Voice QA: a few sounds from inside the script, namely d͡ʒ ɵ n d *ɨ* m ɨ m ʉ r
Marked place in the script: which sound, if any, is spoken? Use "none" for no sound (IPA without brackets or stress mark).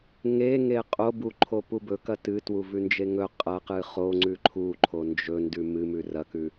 ʉ